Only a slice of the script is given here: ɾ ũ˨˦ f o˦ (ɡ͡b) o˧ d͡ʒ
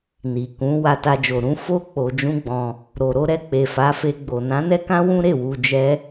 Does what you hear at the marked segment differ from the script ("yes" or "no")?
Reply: yes